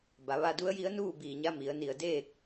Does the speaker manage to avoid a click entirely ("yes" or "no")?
yes